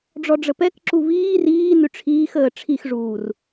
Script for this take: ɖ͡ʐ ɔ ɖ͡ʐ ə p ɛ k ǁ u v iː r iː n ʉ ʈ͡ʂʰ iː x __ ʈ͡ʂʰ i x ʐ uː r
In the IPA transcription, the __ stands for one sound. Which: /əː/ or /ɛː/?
əː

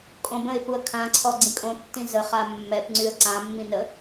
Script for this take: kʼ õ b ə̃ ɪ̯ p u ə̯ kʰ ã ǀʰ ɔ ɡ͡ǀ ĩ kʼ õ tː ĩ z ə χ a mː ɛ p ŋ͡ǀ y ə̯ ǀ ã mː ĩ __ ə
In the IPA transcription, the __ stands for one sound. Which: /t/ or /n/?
n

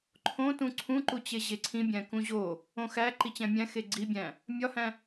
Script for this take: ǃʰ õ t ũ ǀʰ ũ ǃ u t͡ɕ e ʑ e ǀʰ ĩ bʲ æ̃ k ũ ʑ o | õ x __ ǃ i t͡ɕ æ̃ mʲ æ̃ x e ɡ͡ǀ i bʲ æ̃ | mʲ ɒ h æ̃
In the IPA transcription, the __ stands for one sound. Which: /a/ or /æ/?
æ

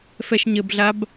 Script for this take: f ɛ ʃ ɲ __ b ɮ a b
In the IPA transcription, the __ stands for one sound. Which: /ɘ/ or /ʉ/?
ɘ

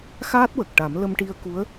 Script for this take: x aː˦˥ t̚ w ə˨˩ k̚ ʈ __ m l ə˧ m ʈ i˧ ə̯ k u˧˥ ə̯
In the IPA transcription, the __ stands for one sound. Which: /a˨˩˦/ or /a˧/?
a˨˩˦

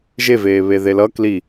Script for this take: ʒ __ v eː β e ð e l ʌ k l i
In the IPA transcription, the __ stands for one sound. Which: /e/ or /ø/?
e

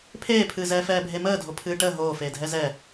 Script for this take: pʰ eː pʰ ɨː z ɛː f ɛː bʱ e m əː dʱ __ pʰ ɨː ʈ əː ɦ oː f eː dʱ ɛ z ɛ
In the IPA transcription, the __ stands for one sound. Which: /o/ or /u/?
o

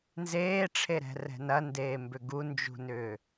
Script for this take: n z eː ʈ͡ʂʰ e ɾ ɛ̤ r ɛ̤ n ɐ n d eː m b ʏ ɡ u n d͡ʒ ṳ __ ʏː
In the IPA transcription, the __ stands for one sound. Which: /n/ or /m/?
n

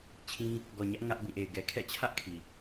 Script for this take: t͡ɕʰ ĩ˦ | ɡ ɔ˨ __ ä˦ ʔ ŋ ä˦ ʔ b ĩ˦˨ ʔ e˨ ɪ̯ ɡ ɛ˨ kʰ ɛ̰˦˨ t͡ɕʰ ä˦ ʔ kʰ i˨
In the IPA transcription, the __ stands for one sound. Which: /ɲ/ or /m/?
ɲ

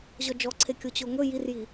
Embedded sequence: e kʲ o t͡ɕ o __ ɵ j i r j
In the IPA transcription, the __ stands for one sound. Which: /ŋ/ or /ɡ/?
ŋ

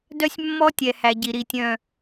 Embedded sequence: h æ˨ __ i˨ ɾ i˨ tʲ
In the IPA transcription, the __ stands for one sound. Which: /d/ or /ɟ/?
ɟ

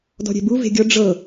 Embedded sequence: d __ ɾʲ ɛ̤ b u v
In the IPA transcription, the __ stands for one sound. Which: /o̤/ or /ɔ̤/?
ɔ̤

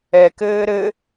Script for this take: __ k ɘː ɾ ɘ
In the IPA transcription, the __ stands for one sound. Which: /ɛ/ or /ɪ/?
ɛ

